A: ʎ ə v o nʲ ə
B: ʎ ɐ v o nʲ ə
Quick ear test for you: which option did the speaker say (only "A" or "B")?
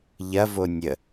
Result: B